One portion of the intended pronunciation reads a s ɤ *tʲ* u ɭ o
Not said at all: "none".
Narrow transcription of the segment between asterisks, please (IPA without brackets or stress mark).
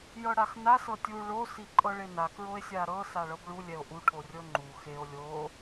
tʲ